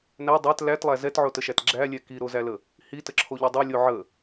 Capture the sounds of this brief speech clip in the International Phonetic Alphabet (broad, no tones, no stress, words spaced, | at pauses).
næ dˤæt lætlˠæ zɛtʕotəʃæt ɡ͡ǁælʲɛ kiɾozælə | hitəǁʰoʎo dˤolʲo ʕə